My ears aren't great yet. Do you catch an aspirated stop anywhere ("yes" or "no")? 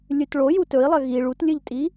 no